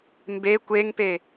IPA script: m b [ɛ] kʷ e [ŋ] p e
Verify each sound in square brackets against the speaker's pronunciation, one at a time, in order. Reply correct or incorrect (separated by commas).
incorrect, correct